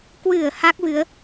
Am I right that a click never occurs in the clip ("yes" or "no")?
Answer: yes